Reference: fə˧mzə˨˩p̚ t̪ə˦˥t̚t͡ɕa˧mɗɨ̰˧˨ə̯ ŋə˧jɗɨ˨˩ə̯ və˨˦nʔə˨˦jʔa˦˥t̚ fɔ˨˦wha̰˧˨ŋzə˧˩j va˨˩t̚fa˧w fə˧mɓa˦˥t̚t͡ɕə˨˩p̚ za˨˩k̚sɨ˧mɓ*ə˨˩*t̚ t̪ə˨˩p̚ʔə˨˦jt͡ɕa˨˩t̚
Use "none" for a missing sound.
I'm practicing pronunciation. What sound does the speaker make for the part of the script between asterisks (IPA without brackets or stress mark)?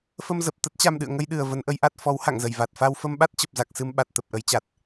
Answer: a˨˩